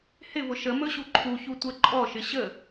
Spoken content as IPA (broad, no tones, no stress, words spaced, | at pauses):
hɪvʊ ʃə mɵɕuǃʰuçu tʷɛǃʼɔʃɪ ɕə